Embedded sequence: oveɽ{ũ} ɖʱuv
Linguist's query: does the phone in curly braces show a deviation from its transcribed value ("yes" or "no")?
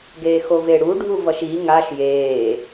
yes